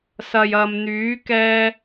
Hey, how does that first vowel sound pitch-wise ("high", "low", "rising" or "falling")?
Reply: low